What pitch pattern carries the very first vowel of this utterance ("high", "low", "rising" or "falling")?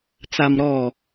low